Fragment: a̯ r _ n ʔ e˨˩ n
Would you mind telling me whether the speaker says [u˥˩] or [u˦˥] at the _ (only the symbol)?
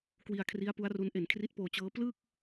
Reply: u˦˥